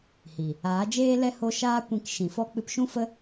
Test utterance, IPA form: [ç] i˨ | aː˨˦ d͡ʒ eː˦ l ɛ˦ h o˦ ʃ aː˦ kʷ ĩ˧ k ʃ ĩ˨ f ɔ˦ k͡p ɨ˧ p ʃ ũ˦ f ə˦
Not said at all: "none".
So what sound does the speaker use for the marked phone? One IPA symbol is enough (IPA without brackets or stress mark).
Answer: h